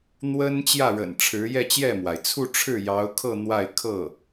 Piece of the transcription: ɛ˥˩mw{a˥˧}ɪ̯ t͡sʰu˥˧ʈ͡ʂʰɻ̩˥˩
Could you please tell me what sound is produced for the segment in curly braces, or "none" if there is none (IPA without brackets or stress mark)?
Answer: a˩